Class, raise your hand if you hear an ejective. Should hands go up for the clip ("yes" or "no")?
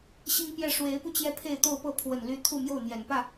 no